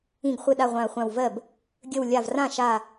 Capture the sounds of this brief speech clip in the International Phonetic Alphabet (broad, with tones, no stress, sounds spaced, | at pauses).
ĩ˧˩ ɡ χʷ ɪ˧˩ ɗ a˧˩ ʁʷ ã˧˩ ɐ̯ χʷ ã˧˩ w v ɜ˥˩ b | ɡʲ ə˧˩ w lʲ a˧˩ v r ã˥˩ ʃ a˧˩